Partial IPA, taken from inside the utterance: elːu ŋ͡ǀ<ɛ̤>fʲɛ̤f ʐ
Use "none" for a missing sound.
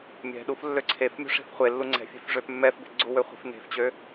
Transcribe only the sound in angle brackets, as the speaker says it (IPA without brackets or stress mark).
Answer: ɛ̤